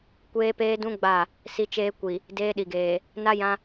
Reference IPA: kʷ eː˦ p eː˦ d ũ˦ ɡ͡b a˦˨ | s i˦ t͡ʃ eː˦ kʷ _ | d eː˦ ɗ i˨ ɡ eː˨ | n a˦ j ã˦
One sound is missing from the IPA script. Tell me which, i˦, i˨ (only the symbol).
i˨